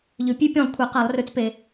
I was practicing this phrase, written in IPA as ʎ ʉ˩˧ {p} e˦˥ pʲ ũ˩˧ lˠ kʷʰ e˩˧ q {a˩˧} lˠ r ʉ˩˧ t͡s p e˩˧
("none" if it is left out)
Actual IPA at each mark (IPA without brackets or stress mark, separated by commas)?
pʲ, a˩˧